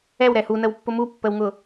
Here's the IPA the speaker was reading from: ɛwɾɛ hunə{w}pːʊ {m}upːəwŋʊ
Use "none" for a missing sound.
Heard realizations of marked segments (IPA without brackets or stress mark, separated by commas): w, m